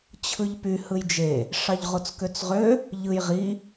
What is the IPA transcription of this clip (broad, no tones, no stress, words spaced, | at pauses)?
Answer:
t͡ɕʰɯʎpy hɯjd͡ʒe | ʂɑʎʁot͡skøt͡sʁø | ʎɯjʁi